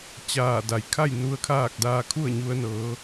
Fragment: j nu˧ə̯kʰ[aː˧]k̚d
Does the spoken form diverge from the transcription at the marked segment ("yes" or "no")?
yes